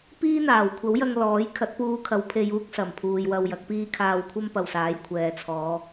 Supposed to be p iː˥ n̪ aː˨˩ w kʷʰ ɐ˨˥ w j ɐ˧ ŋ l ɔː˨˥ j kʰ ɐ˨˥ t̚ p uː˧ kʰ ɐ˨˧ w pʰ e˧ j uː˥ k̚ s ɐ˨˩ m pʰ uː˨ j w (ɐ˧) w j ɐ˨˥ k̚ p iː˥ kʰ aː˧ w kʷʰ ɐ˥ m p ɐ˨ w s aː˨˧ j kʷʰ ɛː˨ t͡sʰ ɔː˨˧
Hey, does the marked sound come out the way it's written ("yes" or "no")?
yes